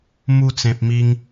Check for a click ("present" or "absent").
absent